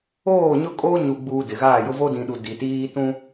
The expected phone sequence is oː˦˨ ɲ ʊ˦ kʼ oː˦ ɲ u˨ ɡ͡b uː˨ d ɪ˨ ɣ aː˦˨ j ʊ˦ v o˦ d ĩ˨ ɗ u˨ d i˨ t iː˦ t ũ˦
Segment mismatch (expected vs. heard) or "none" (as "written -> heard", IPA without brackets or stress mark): none